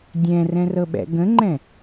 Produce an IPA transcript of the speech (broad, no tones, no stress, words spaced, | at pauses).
dʲɛ̃rɛ̃rɤɓɛ̰ ɡə̃ŋ͡ǃɛ̃